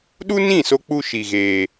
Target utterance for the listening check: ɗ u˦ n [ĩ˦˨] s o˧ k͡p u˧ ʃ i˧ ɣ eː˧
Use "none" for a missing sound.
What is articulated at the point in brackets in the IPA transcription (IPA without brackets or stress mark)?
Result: ĩ˦˨